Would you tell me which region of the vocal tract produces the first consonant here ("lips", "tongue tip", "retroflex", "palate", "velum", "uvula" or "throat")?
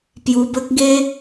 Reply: lips